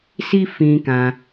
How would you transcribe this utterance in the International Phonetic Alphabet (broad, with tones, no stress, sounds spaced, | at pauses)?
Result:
s i˦ f ĩ˧ k ã˧